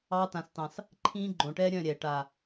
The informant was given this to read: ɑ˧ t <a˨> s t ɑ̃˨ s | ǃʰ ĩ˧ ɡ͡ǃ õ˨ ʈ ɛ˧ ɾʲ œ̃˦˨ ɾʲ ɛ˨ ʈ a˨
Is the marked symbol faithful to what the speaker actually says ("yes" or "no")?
no